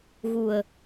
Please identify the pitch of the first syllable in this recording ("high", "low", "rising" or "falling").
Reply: low